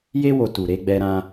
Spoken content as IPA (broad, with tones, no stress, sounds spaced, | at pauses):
j e˧ w o˨ t u˨ ɾ e˨˦ ɡ͡b ɛ˧ ɾ ã˧